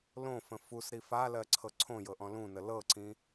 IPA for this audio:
l õ f ə̃ f u s ɾ i f a l ɜ ǀʰ ɤ ǀʰ õ j ɤ ʔ ɔ̃ l ũ n ə l ɤ ǀ ĩ

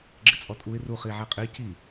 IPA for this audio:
ɡ͡ǁ ɪ t͡sʼ ɔ tʼ u ɪ̯ r u χ i ʕ ɛ qʼ i c i

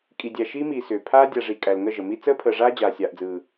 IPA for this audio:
kʼ i˨ dʲ æ˨ ʃ iː˦ m iː˨ s ʏː˨ pʰ aː˦ dʲ a˨ ʐ i˨ kʼ æ˨ l ŋ ə˦˨ ʒ ə˨ m i˦ t͡s əː˦ pʰ əː˨ ʐ aː˦ d͡ʑ aː˨ sʲ aː˨ ʔ d͡z ɯː˨

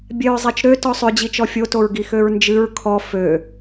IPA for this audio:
bʲ ɛ ɹ zˤ ɛ t͡ʃ ɾ ø t ɔ sˤ ʏ d͡ʑ i t͡ʃ ɔ fʲ o t o ɹ ɡ i x ø ɹ n d͡ʒ ɨ ɹ kʰ ɔ f ø

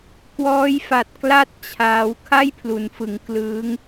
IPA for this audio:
k w ɔː˦˥ j f a˨˩ t̚ k l a˥˩ t̚ t͡ɕʰ aː˦˥ w kʰ a˥˩ j pʰ l u˩˦ n f ɯ˩˦ ŋ k l ɯː˦˥ ŋ

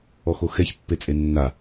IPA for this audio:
ɔ x o x ɛ ç pː e t͡sʼ e nː a

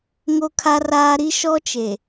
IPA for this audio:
ŋ o˦ kʰ a˦ r aː˦ ɾ i˦ ʃ ɔ˦ t͡ʃ e˨

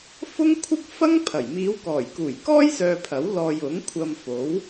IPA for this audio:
f ʊ˥ ŋ kʷʰ ɪ˥ k̚ f ɐ˥ ŋ pʰ ɐ˨˩ j m iː˨˧ w k ɔː˨˩ j k uː˨˩ j k ɔː˥ j s œː˧ pʰ ɐ˨˥ w l ɔː˨ j ʊ˨˥ ŋ kʷʰ ɐ˧ m f o˨˥ w

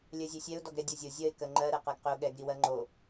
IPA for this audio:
lʲ ɜ zʲ ɛ sʲ ɛ ʊ̯ d ɔ ɡ ɾ ɛ dʲ ɔ zʲ o zʲ ɜ ɪ̯ k ɜ ŋ͡ǃ ɜ ɾ ɛ q ɜ ɡ q ʏ ʊ̯ ɠ ɛ ɡ ɾ i w ɜ ŋ͡ǃ o

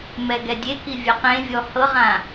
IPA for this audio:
m ɛ ɡ ɛ dʲ e k i vʲ a q ẽ vʲ ɔ h ɤ ʁ ã

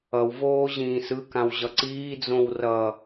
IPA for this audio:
ʌ w v oː ʑ ĩː s ɯ k ã w ʑ ʌ ǀ iː d͡z õ w r ʌ

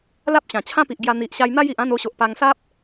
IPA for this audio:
l a˦ p̚ ɕ ã˨˩ t͡ɕʰ ã˦ p i˨ ʔ ɡ j a˧ n̪ i˨ ʔ ɕ a˧ j n̪ a˦ j i˨ ʔ ã˥˧ n o˧ ɕ o˨ ʔ p a˧ ŋ s a˦ p̚

